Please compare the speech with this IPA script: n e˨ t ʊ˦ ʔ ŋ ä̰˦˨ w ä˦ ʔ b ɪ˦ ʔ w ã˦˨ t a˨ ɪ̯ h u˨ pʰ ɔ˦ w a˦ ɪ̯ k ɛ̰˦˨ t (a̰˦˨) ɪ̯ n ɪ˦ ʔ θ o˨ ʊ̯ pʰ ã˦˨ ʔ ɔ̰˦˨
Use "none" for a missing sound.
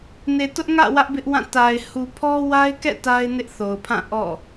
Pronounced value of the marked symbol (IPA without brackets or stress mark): a˦